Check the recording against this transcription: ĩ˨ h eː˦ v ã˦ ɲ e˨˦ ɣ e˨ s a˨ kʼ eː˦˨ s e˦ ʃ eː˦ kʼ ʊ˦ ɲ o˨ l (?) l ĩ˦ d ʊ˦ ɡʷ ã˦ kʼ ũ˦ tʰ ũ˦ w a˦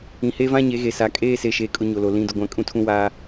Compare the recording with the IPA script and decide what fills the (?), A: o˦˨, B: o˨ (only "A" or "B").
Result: B